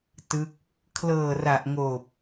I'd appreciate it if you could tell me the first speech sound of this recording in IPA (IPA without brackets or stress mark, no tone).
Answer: t